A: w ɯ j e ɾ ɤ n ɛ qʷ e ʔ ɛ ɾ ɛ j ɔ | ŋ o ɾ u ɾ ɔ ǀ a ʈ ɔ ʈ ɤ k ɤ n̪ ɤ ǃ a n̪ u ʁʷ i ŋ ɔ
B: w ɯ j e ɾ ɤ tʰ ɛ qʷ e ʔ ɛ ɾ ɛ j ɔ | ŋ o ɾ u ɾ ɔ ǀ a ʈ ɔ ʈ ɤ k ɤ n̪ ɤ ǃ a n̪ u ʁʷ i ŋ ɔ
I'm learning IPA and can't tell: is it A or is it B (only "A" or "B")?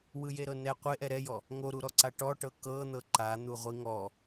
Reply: A